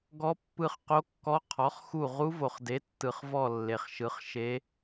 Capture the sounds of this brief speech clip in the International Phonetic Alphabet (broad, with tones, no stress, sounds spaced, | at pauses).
ɡ ɔ˦˥ pː ɯ˦˨ χ q o˦˥ kː ɔ˦˥ qʰ ɔ˨˥ χ x u˦˨ ʁ u˦˥ v o˨ χ d e˨˥ tː ɯ˨ χ v ɔ˦˨ lː e˨ χ ʃ ɯ˨˥ χ ʃ e˦˥